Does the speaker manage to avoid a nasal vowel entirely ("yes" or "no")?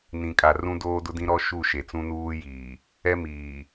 no